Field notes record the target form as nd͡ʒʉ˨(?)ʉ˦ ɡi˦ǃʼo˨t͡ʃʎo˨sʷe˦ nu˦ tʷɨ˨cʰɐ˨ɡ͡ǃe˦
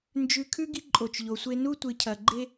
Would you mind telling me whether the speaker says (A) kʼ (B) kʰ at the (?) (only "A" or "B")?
B